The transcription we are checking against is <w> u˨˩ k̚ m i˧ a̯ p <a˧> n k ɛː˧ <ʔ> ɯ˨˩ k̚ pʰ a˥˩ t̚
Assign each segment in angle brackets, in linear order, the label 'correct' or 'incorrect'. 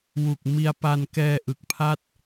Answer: correct, correct, correct

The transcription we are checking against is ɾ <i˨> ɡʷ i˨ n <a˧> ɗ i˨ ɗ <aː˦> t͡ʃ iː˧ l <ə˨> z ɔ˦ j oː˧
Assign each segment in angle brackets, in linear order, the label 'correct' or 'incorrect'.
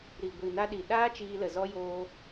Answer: correct, correct, correct, correct

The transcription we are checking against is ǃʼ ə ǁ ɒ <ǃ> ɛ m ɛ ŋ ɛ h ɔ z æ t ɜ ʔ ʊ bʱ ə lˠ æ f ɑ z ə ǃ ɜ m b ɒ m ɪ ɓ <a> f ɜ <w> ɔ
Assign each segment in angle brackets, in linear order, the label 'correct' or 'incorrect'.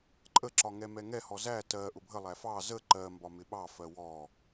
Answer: incorrect, incorrect, correct

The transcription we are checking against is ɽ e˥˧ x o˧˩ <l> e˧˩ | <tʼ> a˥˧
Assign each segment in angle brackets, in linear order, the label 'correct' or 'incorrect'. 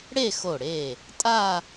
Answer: incorrect, correct

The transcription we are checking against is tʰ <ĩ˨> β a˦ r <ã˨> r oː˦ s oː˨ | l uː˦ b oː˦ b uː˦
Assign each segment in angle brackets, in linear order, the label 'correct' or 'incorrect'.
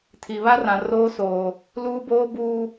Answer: incorrect, correct

